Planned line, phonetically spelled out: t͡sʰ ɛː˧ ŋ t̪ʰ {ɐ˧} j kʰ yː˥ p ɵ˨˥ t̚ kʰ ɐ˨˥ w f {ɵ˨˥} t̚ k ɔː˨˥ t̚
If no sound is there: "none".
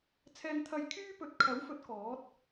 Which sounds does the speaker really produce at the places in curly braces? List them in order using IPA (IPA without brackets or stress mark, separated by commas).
ɐ˧, ɵ˨˥